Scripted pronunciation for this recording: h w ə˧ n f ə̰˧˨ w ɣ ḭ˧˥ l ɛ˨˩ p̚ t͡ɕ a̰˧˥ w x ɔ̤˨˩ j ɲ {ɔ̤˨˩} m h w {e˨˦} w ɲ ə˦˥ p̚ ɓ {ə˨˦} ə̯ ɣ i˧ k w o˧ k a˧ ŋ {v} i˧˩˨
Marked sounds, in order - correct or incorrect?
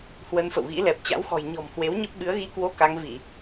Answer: correct, correct, incorrect, correct

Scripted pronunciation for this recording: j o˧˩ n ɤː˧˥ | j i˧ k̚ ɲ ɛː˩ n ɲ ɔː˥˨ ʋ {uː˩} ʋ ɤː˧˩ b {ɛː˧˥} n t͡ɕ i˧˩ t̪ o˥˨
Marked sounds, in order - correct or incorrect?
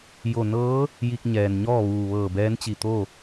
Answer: correct, correct

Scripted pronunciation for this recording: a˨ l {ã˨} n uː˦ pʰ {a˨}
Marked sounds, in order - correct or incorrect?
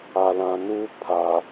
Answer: correct, correct

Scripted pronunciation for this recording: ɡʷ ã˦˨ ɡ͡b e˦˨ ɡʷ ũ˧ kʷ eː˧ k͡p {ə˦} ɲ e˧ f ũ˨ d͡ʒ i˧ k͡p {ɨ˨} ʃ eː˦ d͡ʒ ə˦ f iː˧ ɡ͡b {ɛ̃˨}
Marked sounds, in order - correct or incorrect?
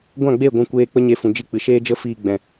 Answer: correct, correct, correct

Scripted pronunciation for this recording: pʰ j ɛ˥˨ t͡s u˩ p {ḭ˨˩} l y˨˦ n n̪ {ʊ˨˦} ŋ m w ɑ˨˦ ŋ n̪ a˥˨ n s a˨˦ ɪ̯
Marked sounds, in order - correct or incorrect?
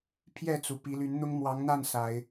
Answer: incorrect, incorrect

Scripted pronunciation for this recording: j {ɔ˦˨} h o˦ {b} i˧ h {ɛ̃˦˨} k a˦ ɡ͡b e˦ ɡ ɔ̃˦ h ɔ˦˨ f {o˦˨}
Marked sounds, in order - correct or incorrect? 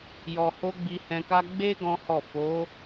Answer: incorrect, incorrect, incorrect, incorrect

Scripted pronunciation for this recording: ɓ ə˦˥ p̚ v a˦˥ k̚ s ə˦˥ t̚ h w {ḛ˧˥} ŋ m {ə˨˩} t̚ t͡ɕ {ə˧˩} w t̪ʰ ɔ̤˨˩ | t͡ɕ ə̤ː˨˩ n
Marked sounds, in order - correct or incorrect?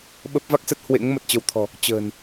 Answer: correct, correct, incorrect

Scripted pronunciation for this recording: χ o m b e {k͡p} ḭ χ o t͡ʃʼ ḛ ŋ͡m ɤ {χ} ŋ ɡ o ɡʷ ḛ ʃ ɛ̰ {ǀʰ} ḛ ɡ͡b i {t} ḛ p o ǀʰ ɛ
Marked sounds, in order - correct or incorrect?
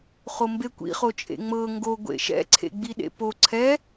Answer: incorrect, incorrect, correct, incorrect

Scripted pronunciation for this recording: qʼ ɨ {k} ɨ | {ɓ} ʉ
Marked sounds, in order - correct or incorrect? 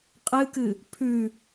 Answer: correct, incorrect

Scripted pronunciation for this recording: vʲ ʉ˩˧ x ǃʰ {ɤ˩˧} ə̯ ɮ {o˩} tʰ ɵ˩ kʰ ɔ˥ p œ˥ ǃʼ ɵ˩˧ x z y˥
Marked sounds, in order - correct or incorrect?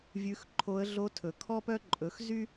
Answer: incorrect, incorrect

